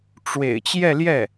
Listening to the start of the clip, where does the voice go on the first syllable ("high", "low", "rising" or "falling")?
low